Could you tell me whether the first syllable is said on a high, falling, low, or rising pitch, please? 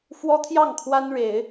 high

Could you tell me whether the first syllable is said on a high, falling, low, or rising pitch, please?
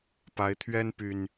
rising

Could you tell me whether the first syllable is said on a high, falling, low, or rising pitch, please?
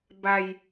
low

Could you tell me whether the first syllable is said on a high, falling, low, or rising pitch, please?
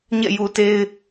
falling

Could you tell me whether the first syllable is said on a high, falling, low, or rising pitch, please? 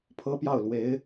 high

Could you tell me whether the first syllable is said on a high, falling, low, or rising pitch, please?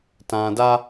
low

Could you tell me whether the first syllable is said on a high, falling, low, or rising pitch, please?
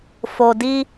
low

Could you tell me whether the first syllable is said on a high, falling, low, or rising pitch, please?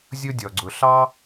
high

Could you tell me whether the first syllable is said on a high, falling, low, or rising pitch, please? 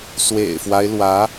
low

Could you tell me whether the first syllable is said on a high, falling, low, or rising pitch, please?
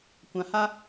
low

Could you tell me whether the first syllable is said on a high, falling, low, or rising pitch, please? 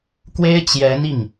high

